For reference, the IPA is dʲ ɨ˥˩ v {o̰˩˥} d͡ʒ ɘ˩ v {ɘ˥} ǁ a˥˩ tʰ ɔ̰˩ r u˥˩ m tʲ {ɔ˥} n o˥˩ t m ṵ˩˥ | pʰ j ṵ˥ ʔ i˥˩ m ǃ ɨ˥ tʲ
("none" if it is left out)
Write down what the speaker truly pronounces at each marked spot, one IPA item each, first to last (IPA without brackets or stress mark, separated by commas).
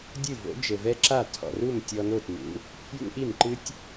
o̰˩˥, ɛ˥, ɔ˧